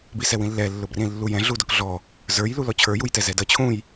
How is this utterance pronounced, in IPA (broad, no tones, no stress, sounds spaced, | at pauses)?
b i s ɛ w ĩ lː ɛ lː ʊ b r ĩ lː u j ɛ̃ ɮ u d ʊ k ɮ ɔ | z ə˞ j l u l ɔ t͡ɕʰ ə˞ j u j t ɛ z ɛ d ʌ t͡ɕʰ ũ j